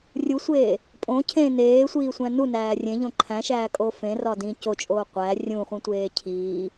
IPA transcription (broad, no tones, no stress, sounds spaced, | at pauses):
rʲ u sʷ eː | pʼ õ cʰ ẽ n eː sʷ iː sʷ æ̃ n u n æː rʲ ẽ ʎ õ ǃʰ æ̃ ʃ æː kʼ o f ẽ r ɒ d ĩ c o t͡ʃʼ oː qʷ æ rʲ ũ χʷ ĩ tʷ eː cʰ iː